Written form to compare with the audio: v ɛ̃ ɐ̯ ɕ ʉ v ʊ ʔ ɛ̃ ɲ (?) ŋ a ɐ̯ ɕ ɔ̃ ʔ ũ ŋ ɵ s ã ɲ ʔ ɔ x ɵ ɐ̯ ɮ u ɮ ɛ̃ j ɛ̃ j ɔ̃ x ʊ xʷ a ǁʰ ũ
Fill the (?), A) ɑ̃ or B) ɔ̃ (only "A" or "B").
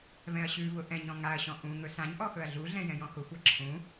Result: B